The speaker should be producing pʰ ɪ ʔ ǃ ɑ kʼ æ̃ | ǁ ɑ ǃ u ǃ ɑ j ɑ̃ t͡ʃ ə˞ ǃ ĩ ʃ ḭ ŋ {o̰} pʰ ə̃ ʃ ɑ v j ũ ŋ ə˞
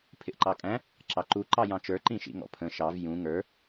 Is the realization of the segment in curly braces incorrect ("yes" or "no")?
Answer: yes